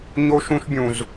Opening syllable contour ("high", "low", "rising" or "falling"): high